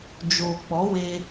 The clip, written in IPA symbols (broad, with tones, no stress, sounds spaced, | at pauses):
d͡ʒ oː˨ k͡p ɔ˨˦ w e˧